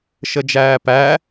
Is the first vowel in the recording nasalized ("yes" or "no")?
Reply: no